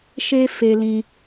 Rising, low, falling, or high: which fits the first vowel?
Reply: high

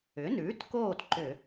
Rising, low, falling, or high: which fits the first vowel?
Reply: rising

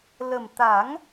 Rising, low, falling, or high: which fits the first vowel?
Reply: low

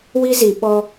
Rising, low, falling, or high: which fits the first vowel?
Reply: high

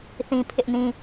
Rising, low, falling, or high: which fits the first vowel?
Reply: high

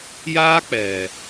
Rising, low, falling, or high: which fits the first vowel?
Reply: high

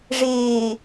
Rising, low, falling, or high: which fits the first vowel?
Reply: low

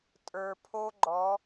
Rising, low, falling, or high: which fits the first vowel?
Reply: low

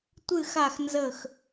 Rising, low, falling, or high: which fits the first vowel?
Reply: falling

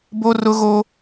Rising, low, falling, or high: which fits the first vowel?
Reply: high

